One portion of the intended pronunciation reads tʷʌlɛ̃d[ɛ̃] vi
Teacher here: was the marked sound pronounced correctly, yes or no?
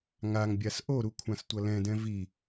yes